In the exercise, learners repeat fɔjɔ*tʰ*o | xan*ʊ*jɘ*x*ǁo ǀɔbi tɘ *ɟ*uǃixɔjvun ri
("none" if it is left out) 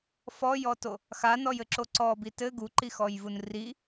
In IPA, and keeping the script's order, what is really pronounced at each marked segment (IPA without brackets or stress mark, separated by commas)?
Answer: t, ɔ, none, ɡ